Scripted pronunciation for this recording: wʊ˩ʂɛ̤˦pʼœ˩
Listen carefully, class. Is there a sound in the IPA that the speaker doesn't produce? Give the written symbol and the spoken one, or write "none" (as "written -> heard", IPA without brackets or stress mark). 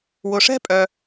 none